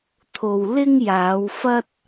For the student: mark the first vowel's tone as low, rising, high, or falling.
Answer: low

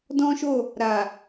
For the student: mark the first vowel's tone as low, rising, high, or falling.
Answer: high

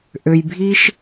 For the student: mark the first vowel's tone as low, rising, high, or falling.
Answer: low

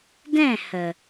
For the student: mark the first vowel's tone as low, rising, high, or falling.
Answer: falling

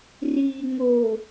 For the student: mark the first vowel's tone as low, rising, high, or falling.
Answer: low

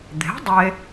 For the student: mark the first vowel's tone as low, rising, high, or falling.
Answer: rising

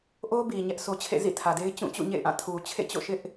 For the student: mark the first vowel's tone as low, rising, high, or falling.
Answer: high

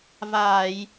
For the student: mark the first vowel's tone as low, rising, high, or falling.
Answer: low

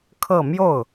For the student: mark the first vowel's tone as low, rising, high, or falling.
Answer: falling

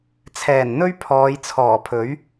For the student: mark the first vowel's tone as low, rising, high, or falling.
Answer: low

